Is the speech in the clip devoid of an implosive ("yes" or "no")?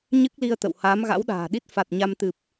no